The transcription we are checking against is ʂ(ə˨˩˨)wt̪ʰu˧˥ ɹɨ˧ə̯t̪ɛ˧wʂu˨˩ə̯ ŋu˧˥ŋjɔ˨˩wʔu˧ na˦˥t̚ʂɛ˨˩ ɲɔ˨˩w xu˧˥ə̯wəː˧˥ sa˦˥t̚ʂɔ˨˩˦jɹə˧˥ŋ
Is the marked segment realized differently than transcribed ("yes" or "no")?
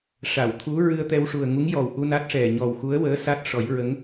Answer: yes